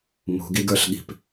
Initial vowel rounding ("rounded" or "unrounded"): rounded